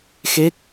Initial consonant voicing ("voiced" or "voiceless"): voiceless